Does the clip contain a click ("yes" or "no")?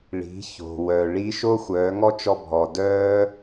no